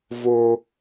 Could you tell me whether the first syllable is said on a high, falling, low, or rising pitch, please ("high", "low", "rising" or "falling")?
low